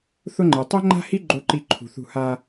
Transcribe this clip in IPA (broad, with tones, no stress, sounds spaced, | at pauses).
θ ʊ˦ ŋ͡ǃ e˨ tˤ e˦ ŋ͡ǃ a̤˦ h i˦ ɡ͡ǃ o˦ ǃ i˦˨ ǃʰ ṳ˨ θ ṳ˦˨ h a˦